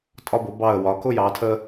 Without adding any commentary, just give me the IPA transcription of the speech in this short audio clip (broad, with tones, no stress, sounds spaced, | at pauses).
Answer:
tʼ ɒ˧ b ʊ˩˧ b ɑ˧˩ ə̯ w ɒ˩˧ k ʊ˥˧ j ɑ˩˧ tʰ ə˧